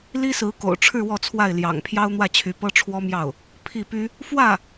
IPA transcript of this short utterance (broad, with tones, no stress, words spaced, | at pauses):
li˥sɹ̩˧˥ko̰˨˩ʊ̯ʈ͡ʂʰɻ̩˥˧ wɔ˥˧t͡sʰwa˥˩ɪ̯ ljɑ̰˨˩ŋpʰjɑ˥ʊ̯ n̪wä˥˩t͡ɕʰy˧˥pɤ˥ ʈ͡ʂʰwɔ˥mjɑ˥˩ʊ̯ | pʰi˥˩py˥ | fwä˥˩